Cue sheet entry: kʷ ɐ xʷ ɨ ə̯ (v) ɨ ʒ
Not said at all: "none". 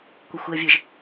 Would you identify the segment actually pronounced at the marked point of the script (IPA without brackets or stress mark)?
vʲ